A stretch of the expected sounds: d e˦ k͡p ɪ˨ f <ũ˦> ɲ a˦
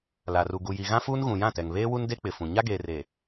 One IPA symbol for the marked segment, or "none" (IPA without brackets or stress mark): ũ˨